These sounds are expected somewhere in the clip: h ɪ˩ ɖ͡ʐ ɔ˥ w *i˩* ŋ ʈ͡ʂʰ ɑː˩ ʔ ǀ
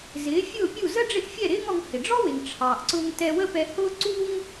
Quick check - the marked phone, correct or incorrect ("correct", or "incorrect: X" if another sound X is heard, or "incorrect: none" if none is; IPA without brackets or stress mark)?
incorrect: ɪ˩